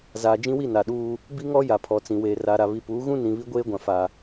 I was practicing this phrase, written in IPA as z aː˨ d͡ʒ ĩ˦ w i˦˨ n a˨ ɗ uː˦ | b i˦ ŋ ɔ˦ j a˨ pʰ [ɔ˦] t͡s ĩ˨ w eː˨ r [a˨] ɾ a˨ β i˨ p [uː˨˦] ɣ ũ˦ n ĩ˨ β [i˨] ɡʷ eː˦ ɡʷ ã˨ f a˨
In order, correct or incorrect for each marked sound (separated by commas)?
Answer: incorrect, correct, correct, incorrect